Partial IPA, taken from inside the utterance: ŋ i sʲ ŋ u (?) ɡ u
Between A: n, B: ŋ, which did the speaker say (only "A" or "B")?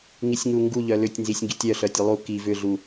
B